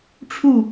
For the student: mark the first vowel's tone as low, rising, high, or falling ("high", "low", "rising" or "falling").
falling